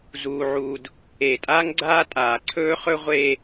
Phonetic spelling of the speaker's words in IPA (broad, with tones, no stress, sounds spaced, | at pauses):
z uː˨ ʕ uː˨ d | e˨ tʼ a˦ ŋ ɡ͡ǀ aː˦ tʼ aː˨ ǀʰ ɵː˦ χ ɵ˦ ʁʷ eː˦